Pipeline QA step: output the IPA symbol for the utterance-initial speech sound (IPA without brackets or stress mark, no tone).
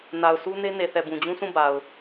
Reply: n